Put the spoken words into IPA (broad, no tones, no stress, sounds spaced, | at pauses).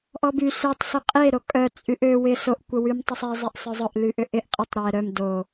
ʔ ɔ b y s e tˤ s ʏ qʼ e ɾ o kʼ œ t͡sʼ y ʔ ø w ɪ s o ʔ kʷ ə w y m tˤ ʊ sˤ e zˤ e ʔ sˤ œ zˤ ʊ ʔ l y ʔ ʏ ʔ ɪ ʔ qʼ ɪ tˤ ɾ ɛ ɾ œ m d o